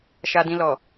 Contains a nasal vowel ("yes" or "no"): yes